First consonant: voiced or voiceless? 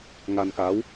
voiced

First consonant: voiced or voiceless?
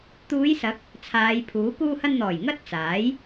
voiceless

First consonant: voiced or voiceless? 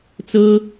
voiceless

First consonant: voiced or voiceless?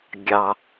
voiced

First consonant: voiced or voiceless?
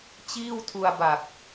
voiceless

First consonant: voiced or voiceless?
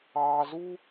voiced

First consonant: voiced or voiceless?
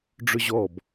voiced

